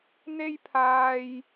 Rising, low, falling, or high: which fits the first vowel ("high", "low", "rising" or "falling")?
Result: high